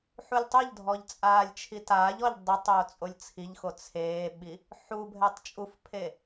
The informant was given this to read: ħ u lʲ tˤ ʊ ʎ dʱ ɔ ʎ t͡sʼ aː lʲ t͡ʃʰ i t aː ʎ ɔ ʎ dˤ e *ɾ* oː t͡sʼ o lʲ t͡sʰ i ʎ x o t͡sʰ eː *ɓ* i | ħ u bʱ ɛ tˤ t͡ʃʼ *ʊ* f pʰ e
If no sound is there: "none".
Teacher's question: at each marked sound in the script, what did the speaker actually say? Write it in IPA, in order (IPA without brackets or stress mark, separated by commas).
tˤ, ɓ, u